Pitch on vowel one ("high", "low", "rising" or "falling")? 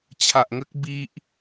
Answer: low